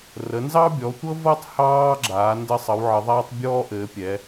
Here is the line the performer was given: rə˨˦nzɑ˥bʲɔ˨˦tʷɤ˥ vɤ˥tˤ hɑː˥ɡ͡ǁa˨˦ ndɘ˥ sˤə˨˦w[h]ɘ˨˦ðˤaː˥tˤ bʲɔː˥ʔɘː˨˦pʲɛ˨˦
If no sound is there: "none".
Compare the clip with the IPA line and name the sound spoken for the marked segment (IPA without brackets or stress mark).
ʕ